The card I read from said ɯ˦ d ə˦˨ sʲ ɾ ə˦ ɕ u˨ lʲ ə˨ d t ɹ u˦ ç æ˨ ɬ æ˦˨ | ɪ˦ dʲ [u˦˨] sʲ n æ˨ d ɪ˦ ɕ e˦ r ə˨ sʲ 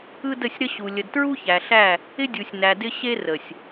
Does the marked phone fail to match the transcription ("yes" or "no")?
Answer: yes